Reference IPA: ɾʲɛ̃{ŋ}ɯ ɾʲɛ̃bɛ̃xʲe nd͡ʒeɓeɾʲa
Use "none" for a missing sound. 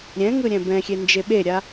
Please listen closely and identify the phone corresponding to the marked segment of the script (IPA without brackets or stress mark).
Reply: ŋ